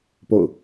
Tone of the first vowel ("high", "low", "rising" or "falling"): falling